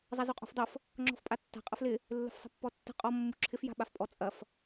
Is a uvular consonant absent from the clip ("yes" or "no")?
no